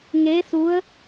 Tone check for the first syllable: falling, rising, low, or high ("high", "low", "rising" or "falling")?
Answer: rising